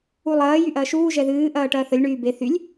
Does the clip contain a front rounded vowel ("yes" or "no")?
yes